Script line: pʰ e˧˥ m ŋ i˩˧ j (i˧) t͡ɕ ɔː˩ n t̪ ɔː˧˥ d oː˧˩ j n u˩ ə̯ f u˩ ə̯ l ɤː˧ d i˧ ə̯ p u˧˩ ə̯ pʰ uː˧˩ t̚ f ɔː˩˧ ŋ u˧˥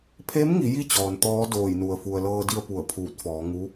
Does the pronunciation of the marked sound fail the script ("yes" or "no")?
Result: no